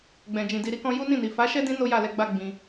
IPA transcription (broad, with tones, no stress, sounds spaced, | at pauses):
ɡ͡b ɛ̃˨ d͡ʒ ĩ˨ d i˨ ɾ i˨˦ k ɔ̃˧ j u˦ n ĩ˦˨ n i˨ f a˨˦ ʃ ɛ˦ d ĩ˧ n o˦ j a˦˨ l ɛ˧ ɡ͡b a˦ ɡ͡b ĩ˧